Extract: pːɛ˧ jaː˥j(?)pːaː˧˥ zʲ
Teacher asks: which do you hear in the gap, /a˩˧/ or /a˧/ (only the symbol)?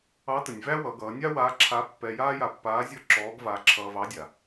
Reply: a˧